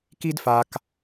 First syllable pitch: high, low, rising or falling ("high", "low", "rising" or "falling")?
high